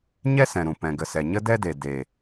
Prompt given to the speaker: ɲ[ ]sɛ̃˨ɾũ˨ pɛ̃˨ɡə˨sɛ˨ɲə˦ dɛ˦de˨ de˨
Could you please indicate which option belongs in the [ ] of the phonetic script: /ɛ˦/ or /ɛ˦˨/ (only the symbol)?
ɛ˦